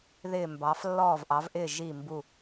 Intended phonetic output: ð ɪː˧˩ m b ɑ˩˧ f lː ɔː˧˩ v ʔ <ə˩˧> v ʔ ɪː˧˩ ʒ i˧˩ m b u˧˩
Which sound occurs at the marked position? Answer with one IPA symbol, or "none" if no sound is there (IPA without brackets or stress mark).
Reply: ɑ˩˧